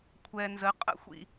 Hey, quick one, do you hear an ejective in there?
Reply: yes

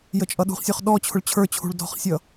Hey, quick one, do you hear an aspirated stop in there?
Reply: yes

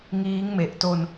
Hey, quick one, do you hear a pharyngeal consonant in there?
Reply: no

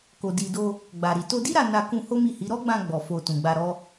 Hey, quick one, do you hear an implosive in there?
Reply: no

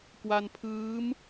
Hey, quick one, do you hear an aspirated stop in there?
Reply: yes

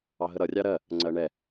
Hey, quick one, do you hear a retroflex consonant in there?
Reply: yes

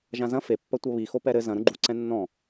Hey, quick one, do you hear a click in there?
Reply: yes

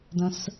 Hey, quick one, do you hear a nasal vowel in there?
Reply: yes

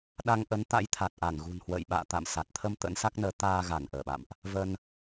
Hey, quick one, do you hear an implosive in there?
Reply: yes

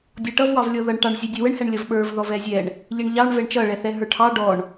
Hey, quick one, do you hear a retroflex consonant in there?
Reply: yes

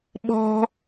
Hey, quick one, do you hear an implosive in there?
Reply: yes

